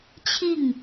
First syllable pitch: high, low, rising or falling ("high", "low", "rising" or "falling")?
falling